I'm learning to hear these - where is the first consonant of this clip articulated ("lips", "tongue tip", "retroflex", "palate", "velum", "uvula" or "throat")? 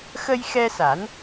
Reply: velum